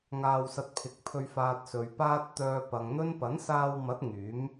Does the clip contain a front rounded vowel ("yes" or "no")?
yes